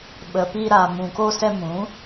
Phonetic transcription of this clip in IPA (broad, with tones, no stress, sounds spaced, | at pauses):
ɓ ə˨ p i˧ ɾ a˨ m ũ˨ k o˧ s ɛ˧ m ũ˨˦